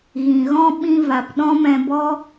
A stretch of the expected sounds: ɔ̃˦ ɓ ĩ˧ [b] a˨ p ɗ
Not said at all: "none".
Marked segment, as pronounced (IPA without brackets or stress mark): v